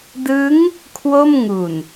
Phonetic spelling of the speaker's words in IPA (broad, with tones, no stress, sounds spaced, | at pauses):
d ɯ˦˥ ŋ | kʰ w o˥˩ m ŋ u˨˩ n